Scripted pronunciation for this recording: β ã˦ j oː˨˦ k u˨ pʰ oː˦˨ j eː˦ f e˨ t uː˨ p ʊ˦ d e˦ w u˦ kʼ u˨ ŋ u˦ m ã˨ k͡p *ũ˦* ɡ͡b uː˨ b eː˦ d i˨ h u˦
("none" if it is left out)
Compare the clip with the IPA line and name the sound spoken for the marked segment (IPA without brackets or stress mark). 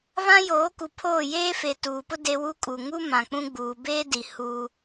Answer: ũ˦